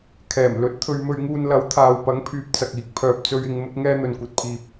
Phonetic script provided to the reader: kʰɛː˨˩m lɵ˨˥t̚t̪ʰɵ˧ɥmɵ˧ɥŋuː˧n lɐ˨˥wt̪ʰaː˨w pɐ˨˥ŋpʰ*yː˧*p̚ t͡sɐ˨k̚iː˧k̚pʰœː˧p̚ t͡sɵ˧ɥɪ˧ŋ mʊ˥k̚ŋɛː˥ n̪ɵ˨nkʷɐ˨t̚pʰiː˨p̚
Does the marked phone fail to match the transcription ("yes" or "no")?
yes